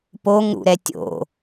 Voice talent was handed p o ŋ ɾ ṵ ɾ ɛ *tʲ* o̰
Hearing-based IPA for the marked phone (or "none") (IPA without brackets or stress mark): tʲ